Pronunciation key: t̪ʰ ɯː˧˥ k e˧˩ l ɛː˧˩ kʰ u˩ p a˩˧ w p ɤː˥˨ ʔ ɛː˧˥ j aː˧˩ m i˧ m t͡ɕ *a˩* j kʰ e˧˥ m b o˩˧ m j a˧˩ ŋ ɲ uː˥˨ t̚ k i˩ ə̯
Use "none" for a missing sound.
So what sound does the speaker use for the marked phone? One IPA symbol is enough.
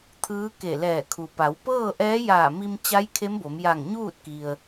a˧˥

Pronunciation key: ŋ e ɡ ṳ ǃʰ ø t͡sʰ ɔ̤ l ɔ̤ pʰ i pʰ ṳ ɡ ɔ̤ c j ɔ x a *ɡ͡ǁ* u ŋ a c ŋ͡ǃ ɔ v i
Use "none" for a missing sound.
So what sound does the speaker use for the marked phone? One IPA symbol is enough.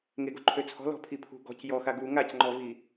ɡ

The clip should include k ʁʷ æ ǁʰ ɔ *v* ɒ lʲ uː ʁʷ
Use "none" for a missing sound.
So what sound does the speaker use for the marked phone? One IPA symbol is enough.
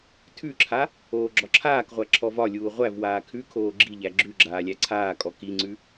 v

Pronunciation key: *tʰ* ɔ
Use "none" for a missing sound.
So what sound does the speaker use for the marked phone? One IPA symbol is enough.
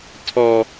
tʰ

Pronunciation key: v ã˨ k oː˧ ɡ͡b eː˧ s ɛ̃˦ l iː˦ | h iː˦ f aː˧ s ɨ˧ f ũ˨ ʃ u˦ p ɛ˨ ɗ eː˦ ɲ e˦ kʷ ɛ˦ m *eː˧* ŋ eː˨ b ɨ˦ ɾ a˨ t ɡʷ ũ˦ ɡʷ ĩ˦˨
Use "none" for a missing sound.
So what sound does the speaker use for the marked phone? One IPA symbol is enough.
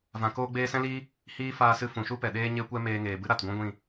eː˧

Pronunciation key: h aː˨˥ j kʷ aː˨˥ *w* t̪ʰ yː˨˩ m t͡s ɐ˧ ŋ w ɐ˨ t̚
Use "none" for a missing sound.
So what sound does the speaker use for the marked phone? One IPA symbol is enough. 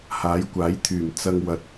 j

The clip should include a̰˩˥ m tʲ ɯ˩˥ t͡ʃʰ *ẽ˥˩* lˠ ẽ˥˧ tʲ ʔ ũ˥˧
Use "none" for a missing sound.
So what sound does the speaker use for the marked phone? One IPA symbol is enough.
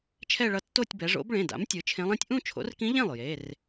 ẽ˧˥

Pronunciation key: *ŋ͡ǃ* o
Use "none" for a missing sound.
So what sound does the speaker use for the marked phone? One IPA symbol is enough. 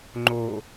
ŋ͡ǃ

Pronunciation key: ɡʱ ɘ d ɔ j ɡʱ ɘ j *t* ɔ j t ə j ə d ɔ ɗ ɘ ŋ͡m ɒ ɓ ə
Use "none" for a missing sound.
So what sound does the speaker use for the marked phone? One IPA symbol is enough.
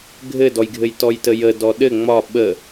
t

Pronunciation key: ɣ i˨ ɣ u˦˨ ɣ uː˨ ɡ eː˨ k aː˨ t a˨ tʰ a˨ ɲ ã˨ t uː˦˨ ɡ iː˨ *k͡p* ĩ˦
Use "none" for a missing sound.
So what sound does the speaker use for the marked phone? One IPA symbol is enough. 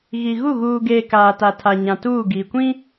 kʷ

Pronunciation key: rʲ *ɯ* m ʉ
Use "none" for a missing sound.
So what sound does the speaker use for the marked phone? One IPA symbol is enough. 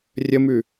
ə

